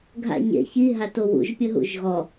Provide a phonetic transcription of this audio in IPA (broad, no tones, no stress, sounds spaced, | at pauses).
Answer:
ɡʱ a̰ ɲ ḛ ç i ɦ a t o w ṵ ʒ pʲ ə ɦ ṵ ʒ ɣ ɔ